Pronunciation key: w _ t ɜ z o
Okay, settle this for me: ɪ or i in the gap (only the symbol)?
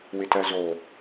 ɪ